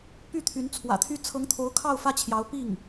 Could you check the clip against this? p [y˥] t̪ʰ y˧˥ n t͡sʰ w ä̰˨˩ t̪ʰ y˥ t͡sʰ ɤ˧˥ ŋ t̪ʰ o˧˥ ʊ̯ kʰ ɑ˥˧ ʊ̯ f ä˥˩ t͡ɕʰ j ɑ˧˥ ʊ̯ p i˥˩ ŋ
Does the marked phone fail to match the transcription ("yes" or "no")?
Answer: yes